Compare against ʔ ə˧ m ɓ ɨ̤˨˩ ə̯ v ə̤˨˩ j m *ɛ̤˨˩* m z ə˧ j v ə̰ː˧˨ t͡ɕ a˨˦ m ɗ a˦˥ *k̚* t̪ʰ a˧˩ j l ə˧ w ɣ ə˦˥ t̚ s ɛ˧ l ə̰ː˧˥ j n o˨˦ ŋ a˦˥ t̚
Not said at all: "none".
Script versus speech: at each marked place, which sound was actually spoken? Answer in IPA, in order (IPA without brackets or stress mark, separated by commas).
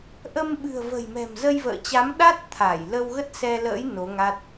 ɛ̤˨˩, t̚